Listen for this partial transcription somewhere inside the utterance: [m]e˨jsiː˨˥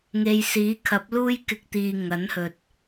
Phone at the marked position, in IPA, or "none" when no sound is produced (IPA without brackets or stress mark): ŋ